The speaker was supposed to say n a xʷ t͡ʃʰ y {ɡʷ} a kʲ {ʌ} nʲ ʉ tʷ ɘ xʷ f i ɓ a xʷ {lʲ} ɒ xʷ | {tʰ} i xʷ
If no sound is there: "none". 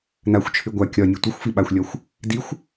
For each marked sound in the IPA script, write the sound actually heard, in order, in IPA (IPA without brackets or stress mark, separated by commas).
ɡʷ, ɒ, lʲ, d